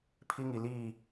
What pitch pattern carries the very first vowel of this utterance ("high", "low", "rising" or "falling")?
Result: high